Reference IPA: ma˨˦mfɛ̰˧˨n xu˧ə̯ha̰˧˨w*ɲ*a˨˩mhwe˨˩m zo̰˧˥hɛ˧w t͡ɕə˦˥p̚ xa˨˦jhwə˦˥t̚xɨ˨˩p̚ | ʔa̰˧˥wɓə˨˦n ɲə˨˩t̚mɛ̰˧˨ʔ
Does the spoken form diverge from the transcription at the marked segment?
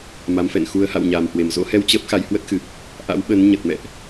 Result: no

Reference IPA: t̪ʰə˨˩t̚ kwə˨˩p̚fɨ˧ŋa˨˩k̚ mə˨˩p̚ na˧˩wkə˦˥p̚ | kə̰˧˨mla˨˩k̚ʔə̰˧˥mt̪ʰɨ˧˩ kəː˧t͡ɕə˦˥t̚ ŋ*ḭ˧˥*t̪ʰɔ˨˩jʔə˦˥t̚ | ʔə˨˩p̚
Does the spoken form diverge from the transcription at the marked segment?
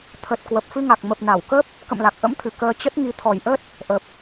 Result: yes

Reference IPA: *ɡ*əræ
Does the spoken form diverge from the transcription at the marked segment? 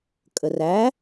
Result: yes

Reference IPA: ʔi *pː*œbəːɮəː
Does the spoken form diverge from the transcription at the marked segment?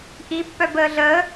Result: no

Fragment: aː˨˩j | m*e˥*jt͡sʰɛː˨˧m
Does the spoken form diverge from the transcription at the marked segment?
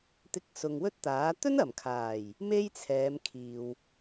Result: no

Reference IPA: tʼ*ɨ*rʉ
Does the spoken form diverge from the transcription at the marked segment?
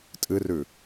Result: no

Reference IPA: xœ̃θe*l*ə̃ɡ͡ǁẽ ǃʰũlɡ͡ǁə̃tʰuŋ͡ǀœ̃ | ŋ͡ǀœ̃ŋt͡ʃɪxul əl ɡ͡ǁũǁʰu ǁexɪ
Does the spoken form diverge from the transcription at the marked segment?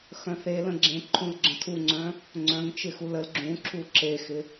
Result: no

